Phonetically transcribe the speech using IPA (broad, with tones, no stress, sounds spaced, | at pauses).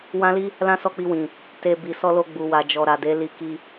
w ã˦ l i˦ | l ã˦ s ɔ˦˨ k͡p i˧ w ĩ˨ | t e˧ b i˨ s ɔ˧ l o˧ ɡ͡b u˨ w a˨ d͡ʒ ɔ˨ ɾ a˨ d e˨˦ l i˧ k i˧